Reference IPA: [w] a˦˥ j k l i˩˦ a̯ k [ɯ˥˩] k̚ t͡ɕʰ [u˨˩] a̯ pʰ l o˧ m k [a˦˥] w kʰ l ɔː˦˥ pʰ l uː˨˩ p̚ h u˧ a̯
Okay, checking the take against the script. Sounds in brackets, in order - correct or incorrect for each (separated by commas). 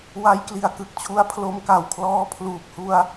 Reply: correct, incorrect, incorrect, incorrect